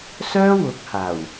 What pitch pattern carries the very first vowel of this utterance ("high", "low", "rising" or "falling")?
high